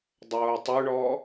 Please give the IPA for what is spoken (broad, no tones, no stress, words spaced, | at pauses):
dˤoːtˤuɳɔː